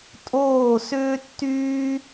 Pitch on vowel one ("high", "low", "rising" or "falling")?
falling